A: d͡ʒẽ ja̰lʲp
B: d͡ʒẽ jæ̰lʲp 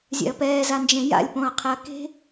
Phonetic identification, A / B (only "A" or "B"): A